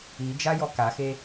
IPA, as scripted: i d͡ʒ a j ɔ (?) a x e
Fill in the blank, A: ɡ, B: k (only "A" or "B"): B